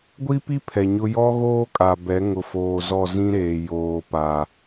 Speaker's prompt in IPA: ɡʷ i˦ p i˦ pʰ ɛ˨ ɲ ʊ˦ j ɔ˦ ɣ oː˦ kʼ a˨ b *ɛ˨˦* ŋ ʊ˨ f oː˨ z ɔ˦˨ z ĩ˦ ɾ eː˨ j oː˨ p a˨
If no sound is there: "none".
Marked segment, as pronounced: ɛ˨˦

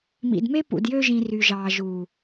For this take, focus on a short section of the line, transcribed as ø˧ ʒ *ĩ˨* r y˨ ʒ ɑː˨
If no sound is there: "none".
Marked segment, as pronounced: ĩ˨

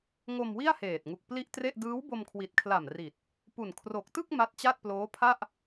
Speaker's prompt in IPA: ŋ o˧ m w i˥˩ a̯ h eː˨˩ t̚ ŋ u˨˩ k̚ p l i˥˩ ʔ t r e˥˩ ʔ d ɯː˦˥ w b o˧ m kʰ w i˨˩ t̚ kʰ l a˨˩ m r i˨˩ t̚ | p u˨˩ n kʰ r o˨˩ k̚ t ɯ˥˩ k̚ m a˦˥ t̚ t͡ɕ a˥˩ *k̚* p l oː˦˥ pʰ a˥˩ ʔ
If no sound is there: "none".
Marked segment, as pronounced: t̚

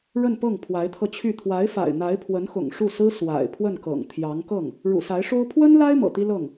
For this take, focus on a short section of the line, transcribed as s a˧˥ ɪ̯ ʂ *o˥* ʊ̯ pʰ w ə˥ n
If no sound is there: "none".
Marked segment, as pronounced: o˥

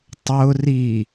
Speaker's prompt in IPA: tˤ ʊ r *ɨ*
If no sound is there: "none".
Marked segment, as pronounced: i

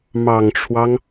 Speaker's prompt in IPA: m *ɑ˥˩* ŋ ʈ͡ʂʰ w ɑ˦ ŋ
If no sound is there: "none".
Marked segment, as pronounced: ɑ˨˩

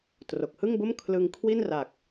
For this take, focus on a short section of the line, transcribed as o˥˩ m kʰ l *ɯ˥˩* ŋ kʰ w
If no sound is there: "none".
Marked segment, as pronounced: ɯ˧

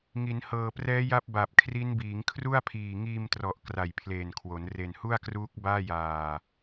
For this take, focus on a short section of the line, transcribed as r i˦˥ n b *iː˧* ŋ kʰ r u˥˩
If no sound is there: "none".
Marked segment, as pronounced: iː˩˦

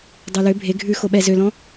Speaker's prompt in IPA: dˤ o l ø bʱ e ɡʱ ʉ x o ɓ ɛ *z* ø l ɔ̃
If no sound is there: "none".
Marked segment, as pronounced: z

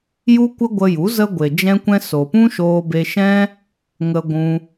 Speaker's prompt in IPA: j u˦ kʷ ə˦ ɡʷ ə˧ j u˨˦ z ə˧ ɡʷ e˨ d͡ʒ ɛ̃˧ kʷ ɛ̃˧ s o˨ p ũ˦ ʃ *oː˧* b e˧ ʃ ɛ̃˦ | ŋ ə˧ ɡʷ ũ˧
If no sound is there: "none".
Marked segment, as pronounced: oː˧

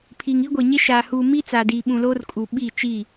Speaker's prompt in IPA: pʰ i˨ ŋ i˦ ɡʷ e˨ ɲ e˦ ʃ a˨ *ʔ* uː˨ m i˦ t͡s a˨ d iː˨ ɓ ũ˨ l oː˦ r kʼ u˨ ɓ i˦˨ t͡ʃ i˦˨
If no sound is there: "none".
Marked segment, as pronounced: h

